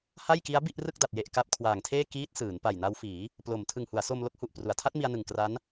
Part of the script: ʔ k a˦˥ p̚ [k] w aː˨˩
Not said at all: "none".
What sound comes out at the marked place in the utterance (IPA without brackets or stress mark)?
kʰ